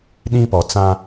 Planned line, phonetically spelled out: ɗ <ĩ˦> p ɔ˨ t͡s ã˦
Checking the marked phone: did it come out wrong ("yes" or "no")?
no